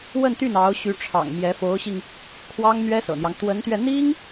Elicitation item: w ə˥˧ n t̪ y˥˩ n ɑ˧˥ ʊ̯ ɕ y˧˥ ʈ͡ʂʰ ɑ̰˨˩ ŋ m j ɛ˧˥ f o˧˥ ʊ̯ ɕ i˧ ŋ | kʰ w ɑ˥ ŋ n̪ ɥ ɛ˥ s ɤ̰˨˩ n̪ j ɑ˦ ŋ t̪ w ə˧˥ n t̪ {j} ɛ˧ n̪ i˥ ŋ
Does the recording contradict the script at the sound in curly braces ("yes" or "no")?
yes